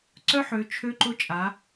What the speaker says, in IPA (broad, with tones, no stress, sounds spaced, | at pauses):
ǀ œ˦ ħ ø˨˦ t͡ʃʰ ø˦ ǃ ʊ˦ t͡ʃʼ a˨˦